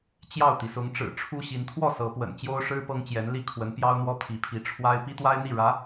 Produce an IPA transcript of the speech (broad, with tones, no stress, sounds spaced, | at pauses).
t͡ɕ j ɑ˥˩ ʊ̯ t̪ i˩ s ʊ˧˥ ŋ ʈ͡ʂ ɻ̩˨˩ ʈ͡ʂʰ u˥ ɕ i˧˥ n t̪ʰ w ɔ˥˩ s ɤ˧˥ p w ə̰˨˩ n t͡ɕ j o˥ ʊ̯ ʂ ɻ̩˥ p ɤ˥ ŋ t͡ɕ j ɛ˧˥ n l i˥ kʰ w ə˧˥ n p j ɑ˥ ʊ̯ n̪ w ɔ˥ pʰ i˧˥ pʰ i˧˥ ʈ͡ʂʰ w a˥ ɪ̯ p i˥ t̪ w a˥ ɪ̯ n̪ i˥˩ ɻ ä˧˥